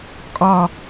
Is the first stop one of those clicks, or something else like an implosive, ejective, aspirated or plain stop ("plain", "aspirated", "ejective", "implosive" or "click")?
ejective